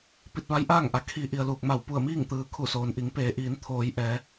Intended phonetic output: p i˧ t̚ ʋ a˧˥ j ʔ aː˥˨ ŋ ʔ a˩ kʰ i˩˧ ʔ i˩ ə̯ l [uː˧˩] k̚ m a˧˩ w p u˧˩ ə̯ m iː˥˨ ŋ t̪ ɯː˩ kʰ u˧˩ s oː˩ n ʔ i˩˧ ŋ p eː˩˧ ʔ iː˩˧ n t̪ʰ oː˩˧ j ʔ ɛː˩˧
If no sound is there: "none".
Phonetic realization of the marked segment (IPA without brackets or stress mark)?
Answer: uː˧˩